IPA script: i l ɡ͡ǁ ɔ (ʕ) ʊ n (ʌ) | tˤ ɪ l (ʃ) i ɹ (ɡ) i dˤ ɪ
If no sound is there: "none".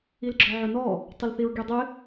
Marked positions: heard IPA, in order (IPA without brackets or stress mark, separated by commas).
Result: ʕ, ɔ, θ, ɡ